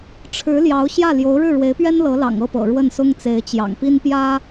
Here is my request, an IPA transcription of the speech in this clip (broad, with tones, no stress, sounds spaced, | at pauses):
ʈ͡ʂʰ ɻ̩˧˥ l j ɑ˧˥ ʊ̯ ɕ j ä˥˩ l j o˧˥ ʊ̯ ɻ ɻ̩˥˩ ɻ w e˧˥ ɪ̯ p ɥ ɛ˥ n l ɤ˧˥ l ɑ̰˨˩ ŋ ɤ˥˩ p ɤ̰˨˩ ɻ w ə˥˩ n s ʊ˥ ŋ t͡s e˧˥ ɪ̯ t͡ɕ j ɑ̰˨˩ ŋ p i˥ n p j ä˥